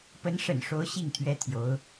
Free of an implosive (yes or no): yes